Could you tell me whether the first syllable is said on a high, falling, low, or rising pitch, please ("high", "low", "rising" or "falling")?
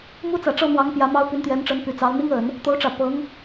high